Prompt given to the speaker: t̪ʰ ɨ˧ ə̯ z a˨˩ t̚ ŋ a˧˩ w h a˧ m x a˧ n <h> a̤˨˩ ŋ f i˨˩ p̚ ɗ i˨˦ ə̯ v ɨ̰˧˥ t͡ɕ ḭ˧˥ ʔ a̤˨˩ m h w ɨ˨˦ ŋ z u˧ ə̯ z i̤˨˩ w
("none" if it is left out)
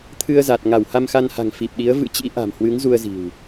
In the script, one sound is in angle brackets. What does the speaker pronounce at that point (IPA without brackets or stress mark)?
h